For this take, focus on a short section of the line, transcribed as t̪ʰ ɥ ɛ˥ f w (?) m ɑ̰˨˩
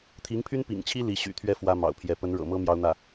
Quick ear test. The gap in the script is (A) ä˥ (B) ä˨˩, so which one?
A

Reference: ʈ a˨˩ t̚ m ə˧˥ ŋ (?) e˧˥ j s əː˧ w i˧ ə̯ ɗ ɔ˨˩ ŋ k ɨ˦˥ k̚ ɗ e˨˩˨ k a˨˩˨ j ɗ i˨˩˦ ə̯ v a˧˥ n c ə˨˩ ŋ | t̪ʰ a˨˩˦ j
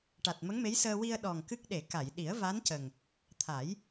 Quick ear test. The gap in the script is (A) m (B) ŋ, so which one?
A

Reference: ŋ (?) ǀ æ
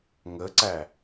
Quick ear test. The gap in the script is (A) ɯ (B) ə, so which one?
B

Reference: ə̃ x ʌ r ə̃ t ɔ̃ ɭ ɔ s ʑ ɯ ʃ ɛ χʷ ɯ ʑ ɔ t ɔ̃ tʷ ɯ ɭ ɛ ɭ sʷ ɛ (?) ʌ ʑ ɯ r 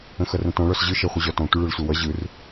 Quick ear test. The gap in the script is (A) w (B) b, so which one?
A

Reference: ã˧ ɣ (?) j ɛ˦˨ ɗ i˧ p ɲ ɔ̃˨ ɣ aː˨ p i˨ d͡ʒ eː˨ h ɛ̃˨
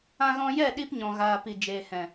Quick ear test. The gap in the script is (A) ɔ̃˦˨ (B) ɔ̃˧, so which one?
B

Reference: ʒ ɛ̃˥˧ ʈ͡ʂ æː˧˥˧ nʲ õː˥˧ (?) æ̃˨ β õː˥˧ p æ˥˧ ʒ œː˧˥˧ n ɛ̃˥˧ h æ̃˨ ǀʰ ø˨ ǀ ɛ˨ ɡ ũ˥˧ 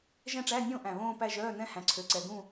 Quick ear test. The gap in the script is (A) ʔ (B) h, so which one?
A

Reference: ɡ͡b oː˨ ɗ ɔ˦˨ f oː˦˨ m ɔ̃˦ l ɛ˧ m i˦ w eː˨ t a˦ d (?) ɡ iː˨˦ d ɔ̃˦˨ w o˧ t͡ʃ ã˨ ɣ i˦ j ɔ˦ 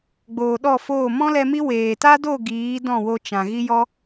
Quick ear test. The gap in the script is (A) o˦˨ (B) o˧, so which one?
A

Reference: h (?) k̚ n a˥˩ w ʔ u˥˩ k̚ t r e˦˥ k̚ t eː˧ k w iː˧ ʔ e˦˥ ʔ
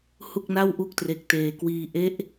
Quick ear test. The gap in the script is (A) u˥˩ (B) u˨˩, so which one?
A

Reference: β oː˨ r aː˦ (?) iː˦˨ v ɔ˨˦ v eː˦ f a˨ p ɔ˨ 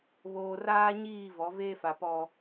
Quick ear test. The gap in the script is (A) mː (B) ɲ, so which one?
B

